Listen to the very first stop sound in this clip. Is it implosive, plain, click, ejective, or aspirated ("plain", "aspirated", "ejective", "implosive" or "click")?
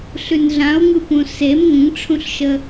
plain